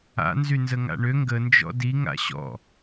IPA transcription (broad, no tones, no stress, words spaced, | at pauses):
a̰nzy nzəŋa̰ɳø ŋɡənd͡ʒɔ̰ di ŋa̰ɕɔ̰